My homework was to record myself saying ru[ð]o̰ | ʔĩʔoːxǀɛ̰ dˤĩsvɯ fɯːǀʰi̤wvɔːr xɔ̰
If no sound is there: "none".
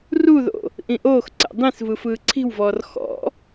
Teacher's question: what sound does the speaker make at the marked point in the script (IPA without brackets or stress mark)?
ð